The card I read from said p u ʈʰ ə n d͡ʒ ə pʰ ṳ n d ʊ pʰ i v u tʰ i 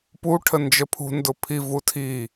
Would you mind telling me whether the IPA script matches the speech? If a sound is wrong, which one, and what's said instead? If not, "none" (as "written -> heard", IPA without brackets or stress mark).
none